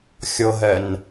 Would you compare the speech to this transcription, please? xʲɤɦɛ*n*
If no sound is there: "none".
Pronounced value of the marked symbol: n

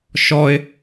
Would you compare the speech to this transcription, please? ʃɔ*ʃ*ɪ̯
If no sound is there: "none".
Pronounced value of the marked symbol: none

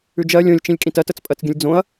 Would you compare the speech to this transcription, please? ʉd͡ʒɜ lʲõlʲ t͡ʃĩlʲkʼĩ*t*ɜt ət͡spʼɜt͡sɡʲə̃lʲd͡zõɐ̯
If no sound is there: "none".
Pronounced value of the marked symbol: t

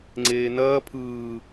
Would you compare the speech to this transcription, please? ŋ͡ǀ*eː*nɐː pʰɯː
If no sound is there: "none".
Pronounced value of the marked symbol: eː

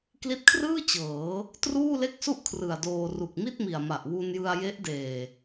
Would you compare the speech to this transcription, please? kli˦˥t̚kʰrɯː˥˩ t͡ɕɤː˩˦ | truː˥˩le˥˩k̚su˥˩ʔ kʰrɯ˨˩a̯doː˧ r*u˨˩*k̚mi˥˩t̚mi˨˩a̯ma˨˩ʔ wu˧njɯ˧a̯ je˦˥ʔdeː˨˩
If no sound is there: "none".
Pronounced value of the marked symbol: u˨˩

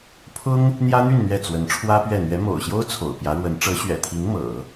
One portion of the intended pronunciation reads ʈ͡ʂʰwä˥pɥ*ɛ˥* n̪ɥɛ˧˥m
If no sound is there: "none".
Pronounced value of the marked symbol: ɛ˥˩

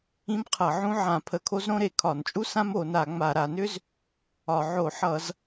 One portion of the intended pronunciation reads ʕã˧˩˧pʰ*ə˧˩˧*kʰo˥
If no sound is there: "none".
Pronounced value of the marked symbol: ə˧˩˧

